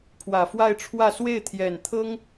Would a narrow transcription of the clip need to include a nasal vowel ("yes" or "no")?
no